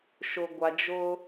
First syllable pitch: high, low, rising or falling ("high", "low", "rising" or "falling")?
low